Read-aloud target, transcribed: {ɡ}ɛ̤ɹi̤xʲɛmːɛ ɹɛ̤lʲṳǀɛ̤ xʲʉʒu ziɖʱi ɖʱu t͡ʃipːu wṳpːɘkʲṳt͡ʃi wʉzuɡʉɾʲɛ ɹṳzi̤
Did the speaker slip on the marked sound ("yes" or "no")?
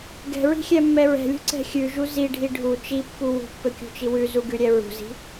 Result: no